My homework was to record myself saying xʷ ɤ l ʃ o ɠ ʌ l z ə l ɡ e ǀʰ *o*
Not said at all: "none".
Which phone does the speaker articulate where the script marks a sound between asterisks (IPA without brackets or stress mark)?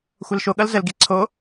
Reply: o